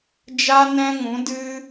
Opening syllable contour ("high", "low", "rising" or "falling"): high